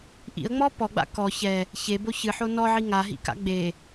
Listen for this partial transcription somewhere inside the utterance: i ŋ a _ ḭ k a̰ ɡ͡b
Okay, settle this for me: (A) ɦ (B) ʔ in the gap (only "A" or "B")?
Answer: A